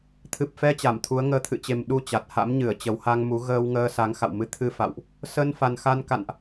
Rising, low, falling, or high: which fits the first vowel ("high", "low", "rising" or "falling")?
low